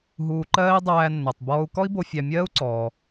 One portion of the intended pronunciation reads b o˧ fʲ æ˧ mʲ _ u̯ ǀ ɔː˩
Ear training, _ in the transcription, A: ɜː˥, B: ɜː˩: A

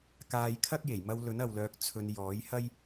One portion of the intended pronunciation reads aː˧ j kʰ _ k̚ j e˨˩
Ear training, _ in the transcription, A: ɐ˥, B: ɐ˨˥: A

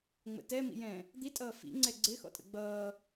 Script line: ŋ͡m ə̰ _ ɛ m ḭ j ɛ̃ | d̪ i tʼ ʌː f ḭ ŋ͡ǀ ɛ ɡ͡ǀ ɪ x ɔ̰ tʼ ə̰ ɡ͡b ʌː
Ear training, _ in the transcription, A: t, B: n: A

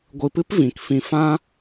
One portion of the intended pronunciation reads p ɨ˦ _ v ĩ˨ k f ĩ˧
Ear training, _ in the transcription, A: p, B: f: A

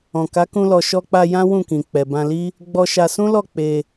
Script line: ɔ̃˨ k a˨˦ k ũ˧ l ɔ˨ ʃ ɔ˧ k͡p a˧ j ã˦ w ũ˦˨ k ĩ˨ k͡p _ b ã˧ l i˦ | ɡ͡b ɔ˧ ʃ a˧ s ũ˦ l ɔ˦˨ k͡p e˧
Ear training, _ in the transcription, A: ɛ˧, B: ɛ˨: B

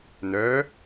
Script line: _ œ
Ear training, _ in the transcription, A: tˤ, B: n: B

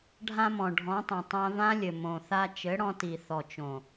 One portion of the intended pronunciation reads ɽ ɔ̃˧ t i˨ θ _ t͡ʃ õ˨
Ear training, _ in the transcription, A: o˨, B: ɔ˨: B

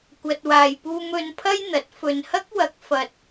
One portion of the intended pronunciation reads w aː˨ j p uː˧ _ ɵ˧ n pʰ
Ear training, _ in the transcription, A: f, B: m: B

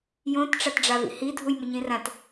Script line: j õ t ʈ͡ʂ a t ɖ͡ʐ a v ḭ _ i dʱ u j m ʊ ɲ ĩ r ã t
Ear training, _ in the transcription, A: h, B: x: A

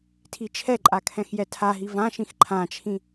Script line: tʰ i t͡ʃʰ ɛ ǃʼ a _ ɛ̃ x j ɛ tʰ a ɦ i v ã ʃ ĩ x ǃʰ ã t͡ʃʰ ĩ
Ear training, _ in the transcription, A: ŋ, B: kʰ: B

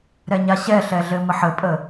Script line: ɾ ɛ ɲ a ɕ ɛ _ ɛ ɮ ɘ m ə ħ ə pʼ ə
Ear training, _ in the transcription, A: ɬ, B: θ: A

